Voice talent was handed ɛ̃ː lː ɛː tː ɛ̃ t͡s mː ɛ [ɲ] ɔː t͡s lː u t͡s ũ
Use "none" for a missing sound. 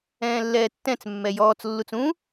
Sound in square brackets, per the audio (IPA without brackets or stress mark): j